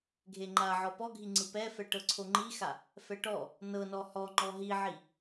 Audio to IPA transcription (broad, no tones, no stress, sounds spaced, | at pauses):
ɡʱ e ŋ͡ǃ a ʕ ɔ p ɔ ɡʱ i ŋ͡ǀ ɯ p ɛ f ɛ ʈ ɤ ǀʰ o ŋ͡ǃ i x a | f ɛ ʈ ɔ | n ɤ n ɔ h ɔ ŋ͡ǃ ɔ ɦ i ʕ i